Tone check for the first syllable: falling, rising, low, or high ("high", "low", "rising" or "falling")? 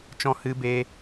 high